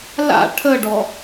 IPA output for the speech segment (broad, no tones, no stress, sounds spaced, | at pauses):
l a̰ ʈʰ ə ɖ ɔ